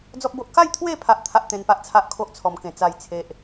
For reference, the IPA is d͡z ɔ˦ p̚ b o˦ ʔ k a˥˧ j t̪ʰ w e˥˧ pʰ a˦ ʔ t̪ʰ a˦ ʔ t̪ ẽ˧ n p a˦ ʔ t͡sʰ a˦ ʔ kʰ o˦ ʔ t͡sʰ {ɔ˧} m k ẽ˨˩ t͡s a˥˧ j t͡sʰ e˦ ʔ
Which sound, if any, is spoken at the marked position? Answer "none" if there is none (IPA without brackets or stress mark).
ɔ˧